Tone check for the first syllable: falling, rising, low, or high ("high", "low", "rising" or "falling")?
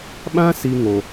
high